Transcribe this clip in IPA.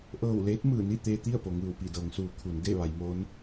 ʔ ɤː˧˩ w l eː˧˥ t̚ m ɯː˧˩ n i˥˨ t̪ eː˧ t̪ i˥˨ ə̯ p o˩ ŋ ɯː˧˩ w p i˧˩ d ɤː˩˧ ŋ s uː˩˧ kʰ u˩˧ n d e˥˨ ʋ a˩˧ j m oː˧˥ n

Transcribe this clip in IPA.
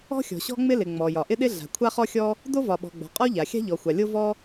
ɔ̤˥ xʲ ɔ̤˩ ɕ ɔ̤˥ ŋ͡m ɪ˥ l ɪ˩ ŋ͡m ɔ˩ j ɒ˩ ʔ ɪ˥ ɗ ɪ˥ ɮ a̤˩ kʷʰ a˥ χ ɔ˥ xʲ ɔ˥ | d o˥ v ɒ˩ ɓ ɔ̤˩ ɡ͡b ɔ̤˩ qʼ ɔ˥ ʎ a˩ xʲ a̤˥ ʎ ɔ˩ xʷ a˩ lʲ o˥ v ɔ˥

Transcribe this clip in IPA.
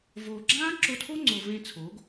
v oː˨ ɡ͡ǁ ãː˦ ǁ o˧ tʰ o˦ ŋ͡ǀ o˨ v ẽ˧ t͡sʰ oː˨˦ ɡ

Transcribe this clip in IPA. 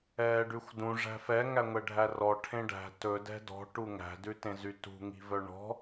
ɛː ɖ ʉ xʷ d ũ ʐ æ̤ f ɛ ŋ æ ŋʷ ɛ ɖʱ æ r ɔ ʈʰ ẽ ɖ æ̤ t ɵ d ɛ̤ d ɔ̤ ʈ u ŋ æ̤ d ʉ t ẽ z y t ṳ ŋ i̤ v œ ɳ ɔ̤

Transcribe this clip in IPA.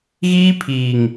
ɣ iː˦ pʰ iː˨ ŋ

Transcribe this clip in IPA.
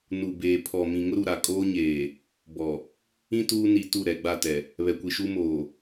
n u˨ b eː˨ pʰ ɔ˨ m ĩ˨ ŋ ʊ˦ ɾ u˨ ɾ a˨ kʼ oː˦ ɲ eː˨ | b ɔ˨ | ĩ˦ t uː˦ n i˨ t u˦˨ ɾ ɛ˨ ɡ͡b a˦˨ t ɛ˨ | β ɛ˨ kʷ i˨ ʃ u˦ m oː˨

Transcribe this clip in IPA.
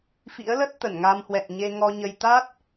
f ḭ˧˥ ə̯ l ə˦˥ t̚ t̪ ə˧˩ n ŋ a˧ m h w ɛ̰˧˨ n ɲ e˧ ŋ ɔ˧ ɲ ə˧ j t̪ a˦˥ t̚

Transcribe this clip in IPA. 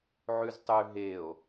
ʕ ʉ z tˤ ʉ ɦ e o̯

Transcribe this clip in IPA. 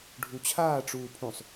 ɖʱ u t͡ɕʰ aː ʈ͡ʂ uː pʰ ũ sˤ

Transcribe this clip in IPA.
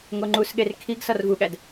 ŋ o ŋ͡ǃ u s ɠ e r kʰ i ɡ s ɒ r v u ɠ æ d

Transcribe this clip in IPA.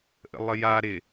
ʔ ə̰ lˠ ə j a ɾ ɪ

